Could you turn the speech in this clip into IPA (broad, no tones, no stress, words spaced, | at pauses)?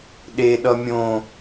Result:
ɗeɗʌ mʲõ